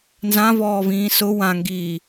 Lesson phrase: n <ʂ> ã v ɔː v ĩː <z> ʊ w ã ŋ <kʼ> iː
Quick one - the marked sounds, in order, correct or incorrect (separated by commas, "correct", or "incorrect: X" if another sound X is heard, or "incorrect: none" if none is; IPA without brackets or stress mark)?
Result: incorrect: z, incorrect: s, incorrect: ɡ